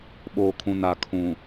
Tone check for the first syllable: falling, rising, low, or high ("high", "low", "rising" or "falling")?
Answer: low